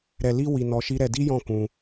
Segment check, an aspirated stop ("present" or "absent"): absent